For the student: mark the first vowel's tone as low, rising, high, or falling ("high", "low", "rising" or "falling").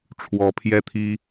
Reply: rising